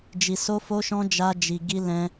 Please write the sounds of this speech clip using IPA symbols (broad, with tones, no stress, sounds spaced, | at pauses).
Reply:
d͡ʒ i˧ s o˦ f o˦ ʃ ɔ̃˦ d͡ʒ a˦ d͡ʒ i˧ ɡ i˦ l ɛ̃˦